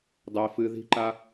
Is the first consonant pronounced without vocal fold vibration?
no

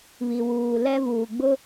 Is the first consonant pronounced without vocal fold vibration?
no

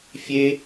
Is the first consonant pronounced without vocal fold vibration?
yes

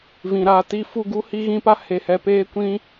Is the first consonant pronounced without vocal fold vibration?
no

